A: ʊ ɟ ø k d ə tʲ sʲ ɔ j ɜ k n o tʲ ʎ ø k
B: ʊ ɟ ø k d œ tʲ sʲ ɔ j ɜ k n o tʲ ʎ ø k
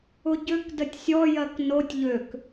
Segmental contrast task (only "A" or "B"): A